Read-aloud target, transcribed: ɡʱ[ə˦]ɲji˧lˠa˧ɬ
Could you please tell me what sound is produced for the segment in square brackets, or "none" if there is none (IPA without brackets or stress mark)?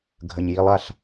ə˨